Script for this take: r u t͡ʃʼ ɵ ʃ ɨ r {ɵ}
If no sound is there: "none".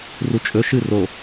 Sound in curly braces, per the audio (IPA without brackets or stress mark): o